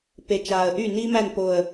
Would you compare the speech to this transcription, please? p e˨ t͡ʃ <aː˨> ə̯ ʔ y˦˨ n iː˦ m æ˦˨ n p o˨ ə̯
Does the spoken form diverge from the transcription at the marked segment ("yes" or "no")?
no